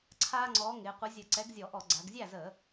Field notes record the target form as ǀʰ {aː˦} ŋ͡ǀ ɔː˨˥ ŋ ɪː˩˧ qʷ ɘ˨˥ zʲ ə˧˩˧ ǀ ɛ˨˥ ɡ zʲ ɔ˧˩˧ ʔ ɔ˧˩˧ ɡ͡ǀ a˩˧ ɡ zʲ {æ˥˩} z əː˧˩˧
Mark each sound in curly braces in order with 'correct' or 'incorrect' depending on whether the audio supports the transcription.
correct, correct

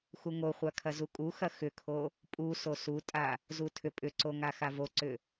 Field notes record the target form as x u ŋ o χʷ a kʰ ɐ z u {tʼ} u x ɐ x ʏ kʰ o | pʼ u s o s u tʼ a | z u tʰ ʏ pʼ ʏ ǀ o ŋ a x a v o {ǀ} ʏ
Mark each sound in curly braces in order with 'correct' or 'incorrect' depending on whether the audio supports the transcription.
incorrect: kʼ, correct

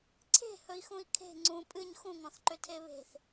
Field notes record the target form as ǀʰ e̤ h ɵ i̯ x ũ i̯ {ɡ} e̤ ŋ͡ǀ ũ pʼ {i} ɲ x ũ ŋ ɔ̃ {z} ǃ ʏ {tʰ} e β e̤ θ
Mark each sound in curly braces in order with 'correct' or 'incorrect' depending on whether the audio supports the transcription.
incorrect: kʰ, incorrect: ɨ, incorrect: θ, correct

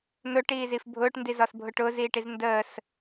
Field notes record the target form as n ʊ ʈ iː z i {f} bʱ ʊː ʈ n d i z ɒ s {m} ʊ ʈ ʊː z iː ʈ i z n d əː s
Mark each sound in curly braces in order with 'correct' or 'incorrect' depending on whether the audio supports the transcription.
correct, incorrect: bʱ

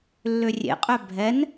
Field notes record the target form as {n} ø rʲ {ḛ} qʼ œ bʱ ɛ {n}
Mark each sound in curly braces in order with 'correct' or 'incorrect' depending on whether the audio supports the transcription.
incorrect: lː, correct, correct

